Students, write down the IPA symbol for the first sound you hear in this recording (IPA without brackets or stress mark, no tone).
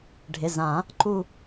ɖʱ